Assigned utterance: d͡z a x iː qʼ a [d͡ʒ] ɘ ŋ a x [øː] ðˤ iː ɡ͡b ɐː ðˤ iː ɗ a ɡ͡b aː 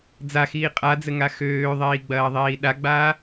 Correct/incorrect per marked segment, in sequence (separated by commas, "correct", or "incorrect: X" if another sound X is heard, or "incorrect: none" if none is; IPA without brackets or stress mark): incorrect: d͡z, correct